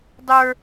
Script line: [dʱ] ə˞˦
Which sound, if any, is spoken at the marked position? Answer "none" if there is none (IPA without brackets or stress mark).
dˤ